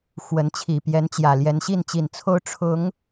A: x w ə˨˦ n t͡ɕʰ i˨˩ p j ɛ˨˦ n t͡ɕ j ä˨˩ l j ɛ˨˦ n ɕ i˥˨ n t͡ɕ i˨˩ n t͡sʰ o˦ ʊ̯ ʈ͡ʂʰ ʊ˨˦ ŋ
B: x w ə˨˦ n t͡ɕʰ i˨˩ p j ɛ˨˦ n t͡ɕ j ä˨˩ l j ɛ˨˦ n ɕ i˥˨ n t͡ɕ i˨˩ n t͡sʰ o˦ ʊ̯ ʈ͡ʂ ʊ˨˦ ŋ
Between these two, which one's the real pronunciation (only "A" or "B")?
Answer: A